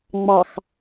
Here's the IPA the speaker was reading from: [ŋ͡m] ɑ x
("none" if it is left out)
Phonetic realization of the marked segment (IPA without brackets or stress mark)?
ŋ͡m